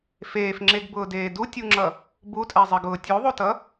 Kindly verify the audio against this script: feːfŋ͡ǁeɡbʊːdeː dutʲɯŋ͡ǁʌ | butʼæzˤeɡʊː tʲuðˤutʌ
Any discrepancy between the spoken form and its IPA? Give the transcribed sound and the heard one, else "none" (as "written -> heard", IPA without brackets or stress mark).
ɯ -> u